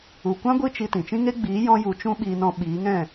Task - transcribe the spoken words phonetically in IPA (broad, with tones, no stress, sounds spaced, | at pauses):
u˨ kʷ ã˦ ɡʷ ɨ˦˨ t͡ʃ i˧ t ĩ˨ t͡ʃ ĩ˦ ŋ e˦ ɡ͡b iː˨˦ j ɔ̃˦ j u˧ t͡ʃ ũ˦ ɓ iː˧ n ɔ̃˧ ɓ iː˨˦ ŋ ɛ̃˦˨